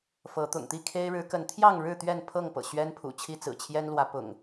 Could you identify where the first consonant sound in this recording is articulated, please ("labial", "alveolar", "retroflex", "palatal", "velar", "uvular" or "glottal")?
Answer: labial